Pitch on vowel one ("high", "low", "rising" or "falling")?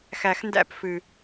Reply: low